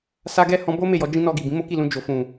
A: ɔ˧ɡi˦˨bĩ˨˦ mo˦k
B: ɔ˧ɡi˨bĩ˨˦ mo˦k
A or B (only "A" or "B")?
B